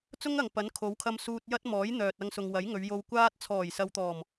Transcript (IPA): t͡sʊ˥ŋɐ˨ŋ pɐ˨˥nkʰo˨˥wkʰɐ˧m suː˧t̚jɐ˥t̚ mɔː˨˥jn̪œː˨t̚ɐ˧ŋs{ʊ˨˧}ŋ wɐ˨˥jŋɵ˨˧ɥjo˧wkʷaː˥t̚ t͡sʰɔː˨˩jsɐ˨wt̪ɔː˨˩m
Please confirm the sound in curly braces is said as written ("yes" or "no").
no